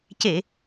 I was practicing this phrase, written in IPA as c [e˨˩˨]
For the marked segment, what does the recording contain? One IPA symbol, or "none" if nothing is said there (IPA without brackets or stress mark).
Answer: e˨˩˨